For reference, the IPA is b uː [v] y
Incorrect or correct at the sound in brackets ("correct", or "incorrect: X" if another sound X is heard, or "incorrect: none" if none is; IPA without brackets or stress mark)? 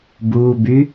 incorrect: b